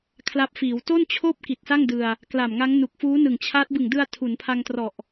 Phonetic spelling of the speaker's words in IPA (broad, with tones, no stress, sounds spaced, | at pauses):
kʰ l a˦˥ p̚ f iː˩˦ w t o˥˩ n t͡ɕʰ oː˥˩ p̚ k i˨˩ t̚ s a˥˩ ŋ d ɯ˧ a̯ | k l a˨˩ m ŋ a˦˥ ŋ n u˨˩ k̚ f uː˦˥ n ɯ˨˩ ŋ t͡ɕʰ a˦˥ t̚ b ɯ˨˩ ŋ d ɯ˧ a̯ tʰ u˩˦ n pʰ a˧ ŋ t r ɔ˨˩ ʔ